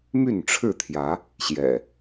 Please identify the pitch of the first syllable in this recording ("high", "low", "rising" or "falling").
falling